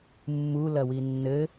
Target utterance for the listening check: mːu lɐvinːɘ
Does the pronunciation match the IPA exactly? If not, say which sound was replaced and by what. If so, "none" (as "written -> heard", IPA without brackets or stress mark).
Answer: v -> w